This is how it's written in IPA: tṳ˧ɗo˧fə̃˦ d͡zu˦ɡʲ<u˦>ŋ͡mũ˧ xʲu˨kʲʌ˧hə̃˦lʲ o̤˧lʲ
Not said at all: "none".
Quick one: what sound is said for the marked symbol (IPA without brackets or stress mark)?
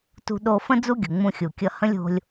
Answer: u˨